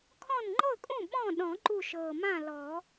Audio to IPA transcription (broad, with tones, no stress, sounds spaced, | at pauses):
kʰ ɔ̃˥˨ n ŋ͡ǃ ɤ˥˨ kʼ ũ˥˨ ɓ ɔ̃˥˨ ɗ ɔ̃˨˩˦ ǃ u˥˨ ʃ ɤ˨˩ m ã˥˨ l ɔ˨˩˦